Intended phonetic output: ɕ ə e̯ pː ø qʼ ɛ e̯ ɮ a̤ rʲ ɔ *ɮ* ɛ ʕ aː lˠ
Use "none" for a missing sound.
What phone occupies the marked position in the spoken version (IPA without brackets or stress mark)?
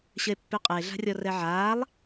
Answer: r